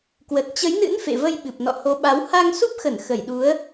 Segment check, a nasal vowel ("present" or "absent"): absent